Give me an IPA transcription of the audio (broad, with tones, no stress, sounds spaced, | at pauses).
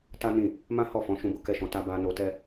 t a˦ n ĩ˦˨ | m ã˦ h ɔ˦˨ f ɔ̃˨˦ ʃ ũ˧ b o˧ k ɛ˧ ʃ ɔ̃˨ t a˧ b a˧ n o˧ t ɛ˦